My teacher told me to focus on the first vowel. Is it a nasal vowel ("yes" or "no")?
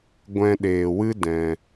yes